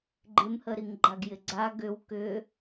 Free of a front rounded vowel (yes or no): no